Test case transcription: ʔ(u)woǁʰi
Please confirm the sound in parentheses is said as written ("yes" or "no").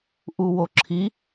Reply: yes